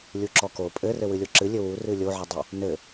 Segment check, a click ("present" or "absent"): present